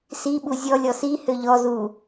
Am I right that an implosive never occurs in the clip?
no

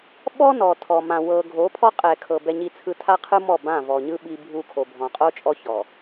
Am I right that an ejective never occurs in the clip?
no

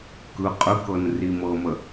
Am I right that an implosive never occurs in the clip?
yes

